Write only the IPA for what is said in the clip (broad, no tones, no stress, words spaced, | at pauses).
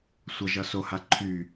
sʷʌʒʌ soha ǃʰy